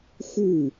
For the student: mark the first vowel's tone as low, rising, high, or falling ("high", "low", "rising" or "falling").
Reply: falling